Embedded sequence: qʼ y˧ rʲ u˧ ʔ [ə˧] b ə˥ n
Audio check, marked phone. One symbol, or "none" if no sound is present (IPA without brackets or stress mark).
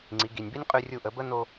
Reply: ə˩˧